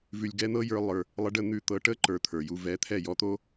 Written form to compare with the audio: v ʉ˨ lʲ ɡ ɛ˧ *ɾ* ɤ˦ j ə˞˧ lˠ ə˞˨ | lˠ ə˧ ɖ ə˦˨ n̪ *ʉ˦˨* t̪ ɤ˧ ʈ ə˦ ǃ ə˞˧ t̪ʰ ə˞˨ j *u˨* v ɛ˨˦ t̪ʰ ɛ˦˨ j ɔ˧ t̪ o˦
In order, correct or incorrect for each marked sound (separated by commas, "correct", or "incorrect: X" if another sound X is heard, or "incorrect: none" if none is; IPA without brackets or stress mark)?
incorrect: n̪, correct, incorrect: u˧